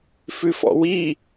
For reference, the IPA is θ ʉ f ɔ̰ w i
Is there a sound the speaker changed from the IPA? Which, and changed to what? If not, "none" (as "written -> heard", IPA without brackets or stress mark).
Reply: θ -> f